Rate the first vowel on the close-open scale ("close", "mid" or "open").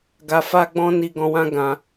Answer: open